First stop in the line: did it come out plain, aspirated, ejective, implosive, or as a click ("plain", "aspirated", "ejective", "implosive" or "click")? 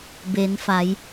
plain